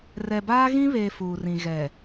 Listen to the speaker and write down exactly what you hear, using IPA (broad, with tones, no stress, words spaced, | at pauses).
rɛ˨baː˦ɣĩ˦βeː˨ fuː˨rĩ˨ ɣɛ˨